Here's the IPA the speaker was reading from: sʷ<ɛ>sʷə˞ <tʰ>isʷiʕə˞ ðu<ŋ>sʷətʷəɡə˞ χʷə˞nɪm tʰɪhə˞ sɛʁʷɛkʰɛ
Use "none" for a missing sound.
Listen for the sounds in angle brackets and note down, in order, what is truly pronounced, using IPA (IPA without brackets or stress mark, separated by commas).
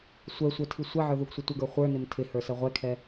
ɛ, tʰ, ɡ